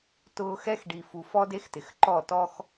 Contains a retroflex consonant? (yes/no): yes